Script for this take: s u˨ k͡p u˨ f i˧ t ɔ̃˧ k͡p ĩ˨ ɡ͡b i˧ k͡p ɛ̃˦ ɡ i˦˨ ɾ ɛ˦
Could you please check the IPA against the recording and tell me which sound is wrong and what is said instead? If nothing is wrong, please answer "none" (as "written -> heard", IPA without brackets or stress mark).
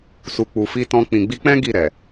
ɛ˦ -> ɛ˨